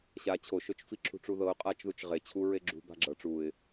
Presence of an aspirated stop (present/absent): present